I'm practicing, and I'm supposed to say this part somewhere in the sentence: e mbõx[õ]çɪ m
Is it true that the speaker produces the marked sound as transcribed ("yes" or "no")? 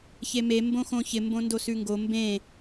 yes